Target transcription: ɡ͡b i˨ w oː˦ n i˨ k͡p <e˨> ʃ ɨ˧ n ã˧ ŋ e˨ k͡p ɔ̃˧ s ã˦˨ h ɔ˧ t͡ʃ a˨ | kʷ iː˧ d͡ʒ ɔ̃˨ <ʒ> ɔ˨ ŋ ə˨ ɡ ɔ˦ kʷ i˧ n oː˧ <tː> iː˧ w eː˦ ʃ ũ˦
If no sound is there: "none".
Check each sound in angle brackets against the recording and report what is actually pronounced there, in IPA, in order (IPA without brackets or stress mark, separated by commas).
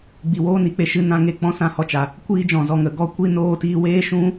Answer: e˨, z, t